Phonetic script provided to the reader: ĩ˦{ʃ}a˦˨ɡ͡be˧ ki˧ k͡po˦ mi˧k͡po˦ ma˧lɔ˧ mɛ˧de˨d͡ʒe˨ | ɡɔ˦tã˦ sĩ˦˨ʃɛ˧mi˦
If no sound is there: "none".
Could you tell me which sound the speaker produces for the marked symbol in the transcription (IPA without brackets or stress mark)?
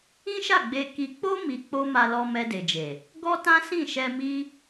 ʃ